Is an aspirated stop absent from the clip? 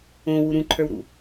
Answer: no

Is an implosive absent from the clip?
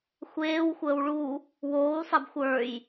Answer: yes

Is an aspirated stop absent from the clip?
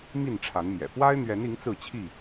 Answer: no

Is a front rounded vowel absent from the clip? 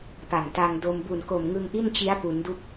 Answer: yes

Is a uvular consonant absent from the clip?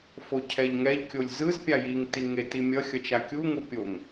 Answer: yes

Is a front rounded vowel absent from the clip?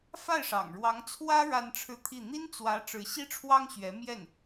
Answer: yes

